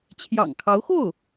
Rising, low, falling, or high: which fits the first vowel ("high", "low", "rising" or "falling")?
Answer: low